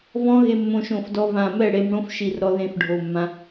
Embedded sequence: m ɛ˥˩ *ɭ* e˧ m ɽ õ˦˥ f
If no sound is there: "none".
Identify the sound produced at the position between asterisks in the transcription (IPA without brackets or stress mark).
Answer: ɽ